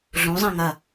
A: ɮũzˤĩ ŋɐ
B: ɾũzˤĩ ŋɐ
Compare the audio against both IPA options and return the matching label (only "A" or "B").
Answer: A